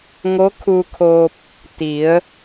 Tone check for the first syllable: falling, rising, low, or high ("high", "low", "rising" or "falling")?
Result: rising